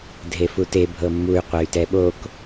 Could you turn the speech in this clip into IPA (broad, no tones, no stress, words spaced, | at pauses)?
dʱefute bʱɤmːuy̯ qʷɛy̯tɛɓok